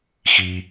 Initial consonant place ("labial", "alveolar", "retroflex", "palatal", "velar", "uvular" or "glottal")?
velar